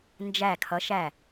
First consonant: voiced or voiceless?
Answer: voiced